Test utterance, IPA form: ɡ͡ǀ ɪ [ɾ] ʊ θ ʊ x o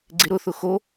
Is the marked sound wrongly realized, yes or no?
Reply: no